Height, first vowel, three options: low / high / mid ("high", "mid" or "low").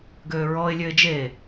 mid